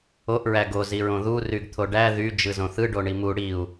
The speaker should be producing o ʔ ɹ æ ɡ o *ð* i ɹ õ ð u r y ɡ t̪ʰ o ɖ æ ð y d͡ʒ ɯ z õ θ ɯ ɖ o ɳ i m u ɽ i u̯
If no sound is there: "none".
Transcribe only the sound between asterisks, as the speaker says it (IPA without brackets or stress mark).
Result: z